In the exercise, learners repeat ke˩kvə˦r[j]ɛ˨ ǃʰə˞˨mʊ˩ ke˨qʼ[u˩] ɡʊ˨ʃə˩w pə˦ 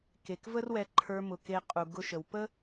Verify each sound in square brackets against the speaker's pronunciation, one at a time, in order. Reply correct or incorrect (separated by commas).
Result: incorrect, correct